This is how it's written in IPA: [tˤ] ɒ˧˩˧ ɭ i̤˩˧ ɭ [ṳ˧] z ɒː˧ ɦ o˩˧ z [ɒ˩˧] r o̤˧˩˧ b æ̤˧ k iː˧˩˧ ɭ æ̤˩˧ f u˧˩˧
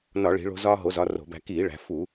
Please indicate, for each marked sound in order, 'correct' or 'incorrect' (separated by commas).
incorrect, incorrect, correct